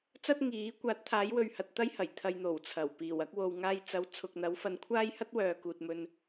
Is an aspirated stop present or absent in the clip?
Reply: present